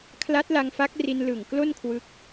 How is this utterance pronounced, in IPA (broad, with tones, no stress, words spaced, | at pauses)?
kʰla˦˥t̚la˧ŋfa˦˥k̚ ri˧nlɯ˨˩ŋ klo˥˩nkʰwɯ˦˥k̚